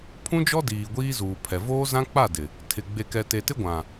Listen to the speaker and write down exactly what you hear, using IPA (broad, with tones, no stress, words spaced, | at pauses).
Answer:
pʰũ˦d͡ʒɔ˦ diː˨ɡʷiː˦ zuː˨pʰɛ˨ voː˦zã˦k͡pa˦˨ dɪ˨ | tʰɪ˨ ɡ͡be˨kɛ˨te˨tɪ˦ ɡʷã˨